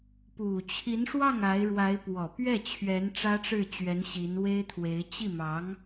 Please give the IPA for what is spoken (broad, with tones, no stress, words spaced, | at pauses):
pu˨˩ t͡ɕʰi˧˥nʂwɑ˥˩ŋ a˧˥ɪ̯ɻwa˧˥ɪ̯ pwɔ˨˩pɥɛ˥˩ t͡ɕʰɥɛ˧˥n ʈ͡ʂä˥ʈ͡ʂɻ̩˥˩t͡ɕɥɛ˧˥n ɕi˧˥nwe˥ɪ̯t̪ʰwe˧˥ɪ̯ t͡ɕi˥˩mɑ˧˥ŋ